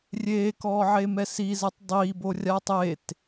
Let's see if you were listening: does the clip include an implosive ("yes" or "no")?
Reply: no